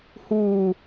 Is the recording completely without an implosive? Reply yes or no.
yes